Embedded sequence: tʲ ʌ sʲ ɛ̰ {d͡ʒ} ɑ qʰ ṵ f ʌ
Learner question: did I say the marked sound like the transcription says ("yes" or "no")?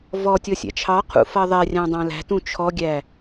no